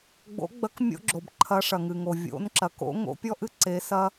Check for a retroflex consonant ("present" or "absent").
present